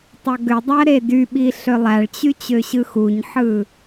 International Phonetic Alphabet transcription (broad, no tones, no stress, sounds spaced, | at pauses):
tˤ o ɡ ø dˤ æ ɾ e d y ɓ i ɬ ø lˠ æ ɭ t͡ɕ y t͡ɕ ø ɕ ɯ x u ɲ ħ ɯ